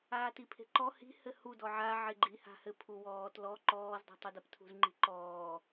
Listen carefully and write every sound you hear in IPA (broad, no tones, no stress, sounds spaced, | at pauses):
aː t i pʰ e̤ ǃ ɔ h i̤ h ɘ h u d ɔ ʕ a ʕ e ɡ͡ǃ i h a̤ h ɘ pʰ u w ɔː t l ɔ ǃ ɔː z dˤ ṳ tˤ u d a p tʰ ṳ z ŋ͡ǃ i̤ ǃ ɔː